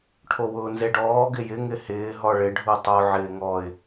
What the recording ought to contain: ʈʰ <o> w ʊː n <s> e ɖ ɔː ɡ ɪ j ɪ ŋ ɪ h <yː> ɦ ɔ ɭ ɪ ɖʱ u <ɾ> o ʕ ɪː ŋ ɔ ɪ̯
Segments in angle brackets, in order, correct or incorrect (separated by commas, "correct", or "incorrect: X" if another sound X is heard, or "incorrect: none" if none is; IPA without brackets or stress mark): correct, incorrect: z, incorrect: ɪː, incorrect: tˤ